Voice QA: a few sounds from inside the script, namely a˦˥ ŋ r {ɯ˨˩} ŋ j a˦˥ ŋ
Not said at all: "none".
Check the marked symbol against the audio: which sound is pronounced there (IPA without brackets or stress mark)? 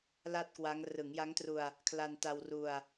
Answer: ɯ˩˦